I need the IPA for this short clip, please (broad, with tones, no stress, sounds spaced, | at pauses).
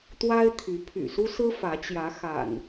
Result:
t̪ w a˦ ɪ̯ t̪ʰ y˨˦ pʰ y̰˨˩ s u˦ s ɹ̩˦ f ä˨˦ t͡ɕ j ä˨˦ x a̰˨˩ n